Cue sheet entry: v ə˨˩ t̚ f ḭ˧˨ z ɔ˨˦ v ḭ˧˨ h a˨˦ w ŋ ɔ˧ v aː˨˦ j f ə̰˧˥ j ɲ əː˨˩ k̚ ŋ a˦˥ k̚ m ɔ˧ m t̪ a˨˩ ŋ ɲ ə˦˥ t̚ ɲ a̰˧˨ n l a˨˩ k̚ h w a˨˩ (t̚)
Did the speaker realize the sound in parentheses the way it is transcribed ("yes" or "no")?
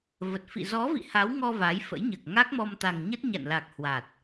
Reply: yes